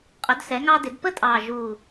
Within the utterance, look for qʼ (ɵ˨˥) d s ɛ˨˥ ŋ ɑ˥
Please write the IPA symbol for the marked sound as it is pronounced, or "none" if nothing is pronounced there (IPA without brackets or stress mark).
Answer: ɵ˨˥